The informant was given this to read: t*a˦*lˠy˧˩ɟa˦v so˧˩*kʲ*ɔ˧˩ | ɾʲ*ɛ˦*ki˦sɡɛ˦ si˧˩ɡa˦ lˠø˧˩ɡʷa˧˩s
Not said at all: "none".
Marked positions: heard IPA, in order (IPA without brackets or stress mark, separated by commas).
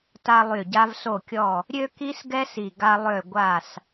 a˦, kʲ, ø˦